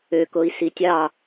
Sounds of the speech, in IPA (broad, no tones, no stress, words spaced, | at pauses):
økoi̯si tʲɑ